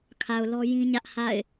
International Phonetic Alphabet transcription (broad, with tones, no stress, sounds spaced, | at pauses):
kʰ a˨ ʊ̯ l ɔ˦ j ĩ˦ ɲ ä˦ ʔ h a̰˦˨ ɪ̯